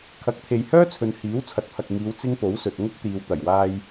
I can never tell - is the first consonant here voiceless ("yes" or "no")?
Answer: yes